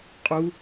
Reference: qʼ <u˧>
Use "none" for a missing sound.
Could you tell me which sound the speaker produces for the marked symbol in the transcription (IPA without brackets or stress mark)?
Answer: u˧